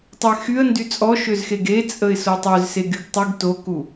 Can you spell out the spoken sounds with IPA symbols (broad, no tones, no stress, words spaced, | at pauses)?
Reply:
tˤɪ xyə̯ndy t͡sʼɔʃøzxeɡ et͡sʼəɪ̯ sotˤøzse ɡyɡtˤyɡ toku